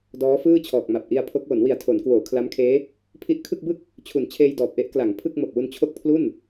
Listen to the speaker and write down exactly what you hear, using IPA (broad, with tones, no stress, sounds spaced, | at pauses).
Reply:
d ɔː˦˥ f ɯː˥˩ t͡ɕʰ ɔː˨˩ k̚ m a˨˩ p̚ ʔ i˧ a̯ pʰ o˦˥ k̚ w o˩˦ n w i˨˩ a̯ tʰ o˩˦ n k w oː˩˦ kʰ l a˦˥ m kʰ eː˦˥ | pʰ i˦˥ ʔ kʰ ɯ˥˩ k̚ b ɯ˥˩ k̚ | t͡ɕʰ u˨˩ n t͡ɕʰ eː˧ j d ɔː˨˩ p̚ ʔ e˦˥ ʔ k l a˩˦ ŋ pʰ ɯ˥˩ k̚ m o˨˩ k̚ w u˧ n t͡ɕʰ o˦˥ k̚ pʰ l u˥˩ n